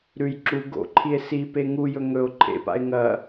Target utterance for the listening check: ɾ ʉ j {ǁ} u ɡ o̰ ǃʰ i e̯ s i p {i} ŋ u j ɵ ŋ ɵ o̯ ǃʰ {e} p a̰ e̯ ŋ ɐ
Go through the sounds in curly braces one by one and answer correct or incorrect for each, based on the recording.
correct, incorrect: e, incorrect: ḛ

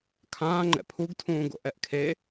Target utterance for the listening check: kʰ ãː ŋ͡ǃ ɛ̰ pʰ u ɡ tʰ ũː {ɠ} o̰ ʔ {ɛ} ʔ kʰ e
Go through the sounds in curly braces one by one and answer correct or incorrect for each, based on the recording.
incorrect: ɡ, correct

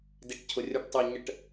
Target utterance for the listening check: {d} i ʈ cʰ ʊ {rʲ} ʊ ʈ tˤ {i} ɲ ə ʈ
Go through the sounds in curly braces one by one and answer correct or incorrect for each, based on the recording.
correct, correct, correct

